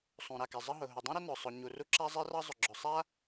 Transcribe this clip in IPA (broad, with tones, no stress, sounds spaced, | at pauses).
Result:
sˤ ũ˩ ɾ a˩ k ɛ˩ zˤ ə˥ ɦ ʊ˩ ɦ ʊ˩ dˤ ũ˥ ɾ ə˥ n ʊ˩ sˤ ʊ˩ ɲ u˩ r u˥ ǁ a˥ zˤ ɛ˥ r ɑ˥ zˤ ʊ˩ ɡ͡ǁ ʊ˩ sˤ a˥